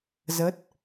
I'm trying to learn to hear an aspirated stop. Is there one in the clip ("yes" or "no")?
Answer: no